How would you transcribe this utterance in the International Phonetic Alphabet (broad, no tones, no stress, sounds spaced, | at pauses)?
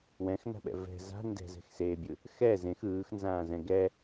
w ɛ̃ x n a̤ ɓ ɛ̰ v ɛ̤ z a̤ n d ɛ̤ z ɛ̤ x s eː bʲ ɯ | x ɛ z ẽ x ɯː x n z ãː z ɛ̃ ɡ ɛ